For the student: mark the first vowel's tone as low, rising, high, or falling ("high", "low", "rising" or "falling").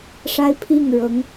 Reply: high